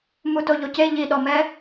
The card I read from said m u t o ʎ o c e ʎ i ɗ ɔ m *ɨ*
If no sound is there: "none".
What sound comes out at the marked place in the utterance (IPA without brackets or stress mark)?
ɛ